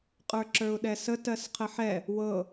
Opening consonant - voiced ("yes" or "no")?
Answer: no